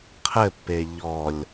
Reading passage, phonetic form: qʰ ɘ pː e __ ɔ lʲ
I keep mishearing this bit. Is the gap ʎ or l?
ʎ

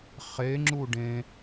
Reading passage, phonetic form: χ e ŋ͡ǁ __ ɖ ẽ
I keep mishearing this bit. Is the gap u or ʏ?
u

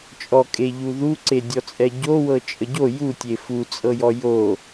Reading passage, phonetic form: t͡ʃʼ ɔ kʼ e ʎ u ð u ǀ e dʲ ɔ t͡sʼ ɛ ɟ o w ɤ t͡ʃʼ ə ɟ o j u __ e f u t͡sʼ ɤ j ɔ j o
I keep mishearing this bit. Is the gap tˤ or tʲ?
tʲ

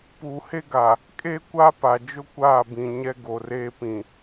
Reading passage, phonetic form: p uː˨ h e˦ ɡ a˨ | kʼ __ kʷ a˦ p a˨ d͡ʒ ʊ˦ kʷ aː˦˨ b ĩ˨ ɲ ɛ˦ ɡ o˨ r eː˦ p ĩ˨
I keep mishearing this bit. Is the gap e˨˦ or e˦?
e˦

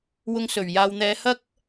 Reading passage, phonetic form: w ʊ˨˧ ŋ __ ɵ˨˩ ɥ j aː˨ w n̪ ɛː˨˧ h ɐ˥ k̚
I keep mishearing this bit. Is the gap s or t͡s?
s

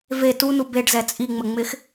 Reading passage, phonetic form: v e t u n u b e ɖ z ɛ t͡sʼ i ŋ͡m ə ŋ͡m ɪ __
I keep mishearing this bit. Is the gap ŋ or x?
x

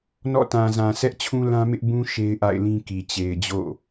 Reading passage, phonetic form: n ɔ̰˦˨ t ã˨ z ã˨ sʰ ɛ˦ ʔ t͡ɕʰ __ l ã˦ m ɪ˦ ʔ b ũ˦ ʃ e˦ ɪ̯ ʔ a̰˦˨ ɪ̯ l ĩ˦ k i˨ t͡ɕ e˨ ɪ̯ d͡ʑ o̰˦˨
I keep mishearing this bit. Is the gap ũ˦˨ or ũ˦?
ũ˦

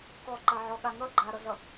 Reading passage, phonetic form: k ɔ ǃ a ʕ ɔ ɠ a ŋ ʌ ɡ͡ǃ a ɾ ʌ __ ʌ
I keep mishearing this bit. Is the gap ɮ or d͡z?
ɮ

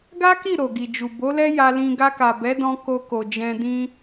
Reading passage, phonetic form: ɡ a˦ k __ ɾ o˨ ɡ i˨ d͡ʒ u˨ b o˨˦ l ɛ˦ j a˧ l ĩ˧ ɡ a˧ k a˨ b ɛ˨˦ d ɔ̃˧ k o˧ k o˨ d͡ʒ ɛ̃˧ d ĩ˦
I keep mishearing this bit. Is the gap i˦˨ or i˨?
i˦˨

